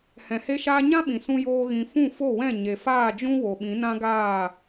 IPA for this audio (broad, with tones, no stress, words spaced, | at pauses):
hɛ̃˨he˦ʃaː˦ ɲã˦ɓĩ˨ sũ˦joː˦ɣĩ˧ fũ˦˨fo˦˨wɛ̃˦˨ ɲe˨faː˦˨d͡ʒũ˦ wo˨ɓĩ˨˦nã˦ɡaː˦˨